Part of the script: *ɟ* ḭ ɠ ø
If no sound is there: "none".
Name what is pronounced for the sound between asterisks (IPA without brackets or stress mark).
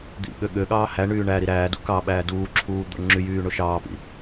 d̪